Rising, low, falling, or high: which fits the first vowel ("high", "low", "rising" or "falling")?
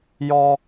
high